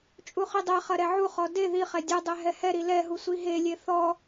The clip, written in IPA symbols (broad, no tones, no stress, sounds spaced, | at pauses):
t͡ʃʼ u χ i dˤ ɛ χ ɐ ɾ ɛ ʕ u χ ɔ d e ð i χ ɛ dʲ ɛ dˤ ɛ ɦ ɛ h ɛ ɾ i l ɛ ɦ u sʷ i ɦ e lʲ e θ ɔ